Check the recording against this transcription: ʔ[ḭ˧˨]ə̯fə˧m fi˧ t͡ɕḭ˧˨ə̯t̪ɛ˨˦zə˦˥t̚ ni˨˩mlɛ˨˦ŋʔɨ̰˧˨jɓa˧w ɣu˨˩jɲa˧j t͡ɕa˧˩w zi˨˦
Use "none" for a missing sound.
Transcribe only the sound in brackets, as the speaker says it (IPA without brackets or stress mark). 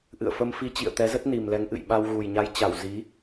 ɨ̰˧˨